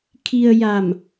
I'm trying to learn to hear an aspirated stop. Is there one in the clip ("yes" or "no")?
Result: yes